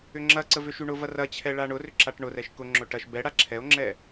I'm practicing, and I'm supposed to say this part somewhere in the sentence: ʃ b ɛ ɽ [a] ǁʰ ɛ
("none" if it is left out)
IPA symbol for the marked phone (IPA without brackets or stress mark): a